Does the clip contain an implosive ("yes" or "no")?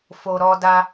no